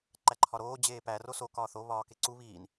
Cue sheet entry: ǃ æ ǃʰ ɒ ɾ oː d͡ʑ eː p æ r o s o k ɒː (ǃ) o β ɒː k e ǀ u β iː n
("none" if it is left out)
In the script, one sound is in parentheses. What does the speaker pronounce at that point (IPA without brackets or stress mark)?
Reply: θ